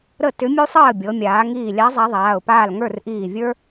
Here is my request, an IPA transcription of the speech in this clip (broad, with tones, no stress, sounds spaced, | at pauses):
ɾ ə˥˨ t ʏ˧˥ mʲ u˥ sˤ əː˥˨ bʲ ɤ˩˧ mʲ aː˩˧ ŋ iː˧˩ lʲ a˧˥ zˤ a˧˥ ðˤ aː˩˧˩ ʊ̯ p aː˥˨ l ŋ ə˞˥˨ r ʔ iː˧˩ vʲ ə˞˥